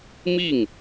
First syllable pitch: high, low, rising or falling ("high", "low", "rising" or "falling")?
falling